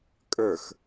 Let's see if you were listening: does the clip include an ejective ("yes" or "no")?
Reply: yes